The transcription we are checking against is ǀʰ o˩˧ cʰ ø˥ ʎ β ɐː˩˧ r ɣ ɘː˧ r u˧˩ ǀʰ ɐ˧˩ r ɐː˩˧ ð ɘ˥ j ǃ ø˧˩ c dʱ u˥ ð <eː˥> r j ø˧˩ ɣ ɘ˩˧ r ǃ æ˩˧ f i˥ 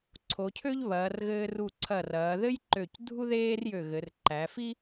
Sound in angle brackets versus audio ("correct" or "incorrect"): correct